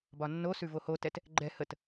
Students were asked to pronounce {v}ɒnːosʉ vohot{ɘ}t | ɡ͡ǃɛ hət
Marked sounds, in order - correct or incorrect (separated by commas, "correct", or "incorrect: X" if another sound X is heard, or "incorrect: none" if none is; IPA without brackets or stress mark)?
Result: incorrect: b, incorrect: ɛ